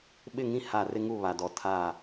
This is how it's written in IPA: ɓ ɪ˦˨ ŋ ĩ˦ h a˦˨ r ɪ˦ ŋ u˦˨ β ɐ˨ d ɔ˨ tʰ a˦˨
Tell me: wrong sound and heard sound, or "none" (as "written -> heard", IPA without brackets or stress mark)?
ɐ˨ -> a˨